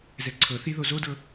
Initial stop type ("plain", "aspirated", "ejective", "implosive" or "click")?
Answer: click